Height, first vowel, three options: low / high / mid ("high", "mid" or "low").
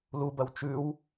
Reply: high